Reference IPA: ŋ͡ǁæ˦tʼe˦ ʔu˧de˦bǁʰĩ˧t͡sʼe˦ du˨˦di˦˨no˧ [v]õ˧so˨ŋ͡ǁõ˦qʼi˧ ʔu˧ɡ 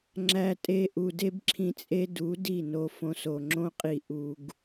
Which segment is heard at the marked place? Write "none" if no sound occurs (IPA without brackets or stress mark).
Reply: f